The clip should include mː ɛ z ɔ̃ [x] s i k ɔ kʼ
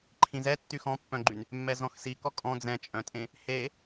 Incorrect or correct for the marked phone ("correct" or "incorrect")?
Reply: correct